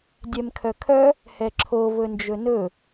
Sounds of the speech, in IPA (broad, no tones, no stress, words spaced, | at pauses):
dʲɛmkʰœkʰœ | hɛǁʰo vɵnd͡ʒɵnɵ